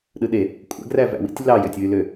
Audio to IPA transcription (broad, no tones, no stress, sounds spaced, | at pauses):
ɗ ɯ ɗ e | kʷʼ æ̰ ɡ r æ v æ̰ w ḭ tʲ l ɑ j ø tʲ w y l ø